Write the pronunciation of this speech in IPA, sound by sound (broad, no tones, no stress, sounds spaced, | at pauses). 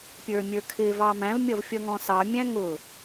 pʲ ə˞ mʲ ə˞ kʰ ɪ v ɑ m æ̃ v mʲ ʌ v fʲ ʌ ŋ ɔ̃ s ɑ mʲ æ̃ ŋ ʊ